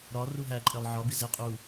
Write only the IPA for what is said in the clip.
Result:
ɾɒ ruɦæ ǃʼelˠʕɒ bize qʼu

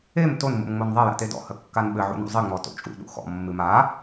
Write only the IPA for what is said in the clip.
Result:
em ton mṵmŋ͡monðˤɐ ja̰tedɔ̰ hɐkːanɓɘ ʕṵnṵzˤɨ ŋ͡mɔto̰t͡ʃʼṵ ɗṵxɔ̰ mːɨma

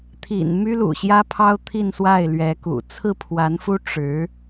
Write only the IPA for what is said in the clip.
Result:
t̪ʰḭ˨˩n my˥lṵ˨˩ɕjä˥pʰɑ˥ʊ̯ t̪ʰi˥˧nswa˥˩ɪ̯ lɥɛ˧˥kṵ˨˩ t͡sʰɹ̩˥˩pʰwa˧˥nfu˥ ʈ͡ʂɻ̩˧˥

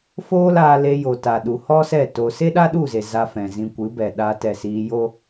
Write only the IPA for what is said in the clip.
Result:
foː˦laː˧le˧ jo˨ta˨ ɗu˨ hɔ˦sɛ˦˨ to˧ se˦ɗa˦ɗu˦˨ze˨ za˧fɛ̃˨ zĩ˧ kʷɨ˨˦bɛ˨ɗaː˧t ɛ˨siː˧jo˦

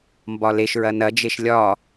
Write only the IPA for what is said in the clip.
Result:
mbɒleʃɹɐ nɐd͡ʒeʃ lʲɒ

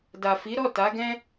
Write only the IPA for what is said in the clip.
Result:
da˨fi˨˦ɾɔ˦˨ ta˨˦ɡɛ̃˦

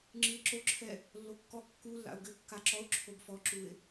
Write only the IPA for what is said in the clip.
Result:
ŋ͡ǁɨɪ̯ǁoǁʰɛ | lːokːɔ kːu lːa̰ʊ̯ɡɘ kːaǁɔʊ̯ ǁʰobfɔǁuɪ̯

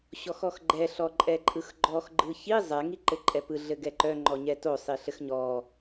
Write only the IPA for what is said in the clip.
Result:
ɕɔxɔxɡ͡ǃɛ ɬɔǃʼɛǃʼɯxɡ͡ǃɔx ɡ͡ǃɯçi zˤɛ ŋiǃɘǃʼɛpɯ ɮɘɡɛǃœ ŋ͡ǃɔɲɛto sˤiɬɘxɲɔ

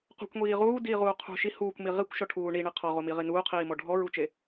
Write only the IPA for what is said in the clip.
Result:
qṳkʷŋʷiː ʁuːdiːʁuː qʰṳ ʃi huːkʷmi ʁikʷʃɔʈʰuː ɳiɳe qʰɔʁomiʁi nuːqʰiːmɔ ɖʱɔɹut͡ʃe

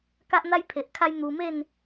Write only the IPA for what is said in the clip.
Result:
ka˦ʔn̪a˦j pʰe˨ʔkʰa˦jn̪u˧ me˥˧n

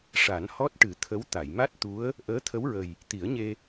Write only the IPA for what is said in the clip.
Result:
ʂa˨˩˦nhɔ˦˥t̚ʈɨ˨˩˦ t̪ʰə˧˥w t̪a˨˩˨jma˦˥t̚ t̪u˧˥ə̯ | ʔəː˧˥t̪ʰə˧˥wɹə˨˩j | t̪i˨˩˦ə̯ɲe˧

